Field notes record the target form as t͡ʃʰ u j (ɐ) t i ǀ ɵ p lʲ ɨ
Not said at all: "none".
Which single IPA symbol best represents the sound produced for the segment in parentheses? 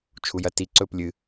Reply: ɐ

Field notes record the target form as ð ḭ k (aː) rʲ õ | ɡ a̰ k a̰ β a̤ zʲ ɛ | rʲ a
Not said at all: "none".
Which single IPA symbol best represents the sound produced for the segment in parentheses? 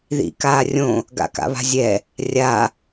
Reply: aː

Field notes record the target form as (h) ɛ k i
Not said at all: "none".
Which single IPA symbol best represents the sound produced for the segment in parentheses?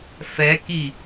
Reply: f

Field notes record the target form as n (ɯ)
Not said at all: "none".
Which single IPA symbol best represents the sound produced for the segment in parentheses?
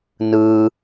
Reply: ɯ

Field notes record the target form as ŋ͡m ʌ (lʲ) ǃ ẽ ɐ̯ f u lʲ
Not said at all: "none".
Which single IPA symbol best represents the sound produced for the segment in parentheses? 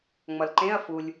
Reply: l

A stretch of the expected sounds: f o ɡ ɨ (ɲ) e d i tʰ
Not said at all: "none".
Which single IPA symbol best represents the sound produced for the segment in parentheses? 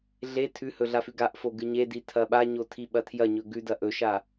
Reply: ɲ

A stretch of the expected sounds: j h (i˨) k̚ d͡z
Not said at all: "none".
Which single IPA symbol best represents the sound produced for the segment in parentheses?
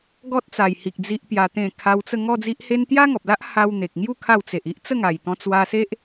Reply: i˨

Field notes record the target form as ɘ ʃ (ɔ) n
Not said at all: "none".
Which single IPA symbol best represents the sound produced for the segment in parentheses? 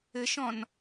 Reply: ɔ̃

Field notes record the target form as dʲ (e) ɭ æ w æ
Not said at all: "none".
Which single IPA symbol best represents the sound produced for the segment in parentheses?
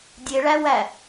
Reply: e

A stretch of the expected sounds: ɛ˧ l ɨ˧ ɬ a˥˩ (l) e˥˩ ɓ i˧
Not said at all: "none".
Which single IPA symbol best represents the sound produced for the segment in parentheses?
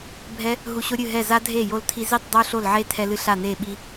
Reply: n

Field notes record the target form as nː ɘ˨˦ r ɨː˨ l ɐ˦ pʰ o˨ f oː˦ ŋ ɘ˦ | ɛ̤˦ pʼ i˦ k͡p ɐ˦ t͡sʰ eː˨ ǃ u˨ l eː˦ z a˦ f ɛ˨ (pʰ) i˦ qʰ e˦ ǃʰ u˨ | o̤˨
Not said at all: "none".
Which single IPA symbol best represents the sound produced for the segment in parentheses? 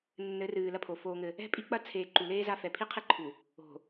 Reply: pʰ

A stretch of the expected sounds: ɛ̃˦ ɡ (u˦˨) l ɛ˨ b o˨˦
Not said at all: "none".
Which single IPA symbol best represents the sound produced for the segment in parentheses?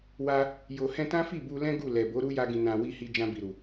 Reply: u˦˨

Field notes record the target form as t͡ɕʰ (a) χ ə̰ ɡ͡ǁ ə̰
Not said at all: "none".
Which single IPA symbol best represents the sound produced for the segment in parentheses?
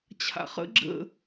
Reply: a̰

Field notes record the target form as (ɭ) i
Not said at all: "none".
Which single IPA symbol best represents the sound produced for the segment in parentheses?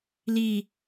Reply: l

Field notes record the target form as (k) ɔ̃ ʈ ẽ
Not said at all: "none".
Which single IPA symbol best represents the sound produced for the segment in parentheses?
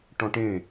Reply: ʈ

